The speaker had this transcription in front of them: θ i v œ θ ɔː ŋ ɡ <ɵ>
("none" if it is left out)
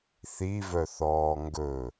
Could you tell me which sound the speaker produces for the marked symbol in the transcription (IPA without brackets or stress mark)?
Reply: ɵ